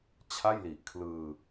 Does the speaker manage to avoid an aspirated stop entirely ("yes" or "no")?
no